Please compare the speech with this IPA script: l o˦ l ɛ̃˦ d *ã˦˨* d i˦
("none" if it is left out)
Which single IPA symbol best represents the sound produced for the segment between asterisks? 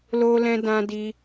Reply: ã˦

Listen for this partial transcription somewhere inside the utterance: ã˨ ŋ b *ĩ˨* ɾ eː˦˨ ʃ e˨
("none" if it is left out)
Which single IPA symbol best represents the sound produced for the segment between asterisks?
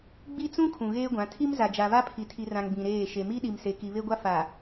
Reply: ĩ˨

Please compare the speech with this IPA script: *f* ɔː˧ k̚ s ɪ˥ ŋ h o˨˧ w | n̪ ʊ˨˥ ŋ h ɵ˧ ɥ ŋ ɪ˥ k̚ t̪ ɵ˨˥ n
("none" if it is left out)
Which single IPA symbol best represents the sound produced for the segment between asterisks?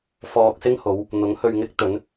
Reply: f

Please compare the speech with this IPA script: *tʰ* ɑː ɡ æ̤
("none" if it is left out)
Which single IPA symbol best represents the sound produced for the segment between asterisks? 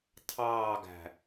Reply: tʰ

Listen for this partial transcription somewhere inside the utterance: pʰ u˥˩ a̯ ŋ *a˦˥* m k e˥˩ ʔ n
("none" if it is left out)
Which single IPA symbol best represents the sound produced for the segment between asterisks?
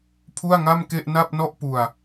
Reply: a˥˩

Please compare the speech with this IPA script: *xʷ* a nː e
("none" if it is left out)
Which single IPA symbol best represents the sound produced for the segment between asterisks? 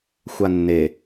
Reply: xʷ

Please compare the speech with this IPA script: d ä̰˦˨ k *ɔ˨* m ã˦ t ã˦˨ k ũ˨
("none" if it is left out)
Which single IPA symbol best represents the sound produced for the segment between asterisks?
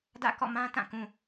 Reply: ɔ̰˦˨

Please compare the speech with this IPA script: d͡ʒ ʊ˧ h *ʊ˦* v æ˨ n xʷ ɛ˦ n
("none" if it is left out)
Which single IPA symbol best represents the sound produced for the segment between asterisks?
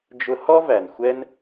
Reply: ɔ˦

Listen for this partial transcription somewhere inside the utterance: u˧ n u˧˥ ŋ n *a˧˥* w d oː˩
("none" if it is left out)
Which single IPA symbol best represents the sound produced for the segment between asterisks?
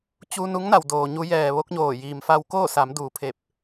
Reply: a˩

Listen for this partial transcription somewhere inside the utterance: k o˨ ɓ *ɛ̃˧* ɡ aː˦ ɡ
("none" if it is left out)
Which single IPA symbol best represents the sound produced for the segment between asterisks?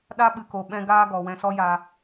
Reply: ɛ̃˧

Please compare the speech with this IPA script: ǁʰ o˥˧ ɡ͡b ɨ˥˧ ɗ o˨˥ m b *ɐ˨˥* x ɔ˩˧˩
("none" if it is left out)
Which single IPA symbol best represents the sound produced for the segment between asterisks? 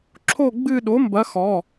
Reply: ɐ˨˥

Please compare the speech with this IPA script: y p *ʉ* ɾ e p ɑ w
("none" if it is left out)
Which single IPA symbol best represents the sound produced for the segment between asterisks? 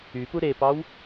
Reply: u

